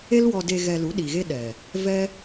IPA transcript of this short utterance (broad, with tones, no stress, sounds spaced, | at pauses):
e˦ l w ɔ˧ d e˧ ɣ ɛ˧ l u˨˦ ɗ i˨ ɣ e˦ ɗ ɛ˨ | v ɛ˦